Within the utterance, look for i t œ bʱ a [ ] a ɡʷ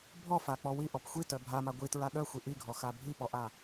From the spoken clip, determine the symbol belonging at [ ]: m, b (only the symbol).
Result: m